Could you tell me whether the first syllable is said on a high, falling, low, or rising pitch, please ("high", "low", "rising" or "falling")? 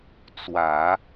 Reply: low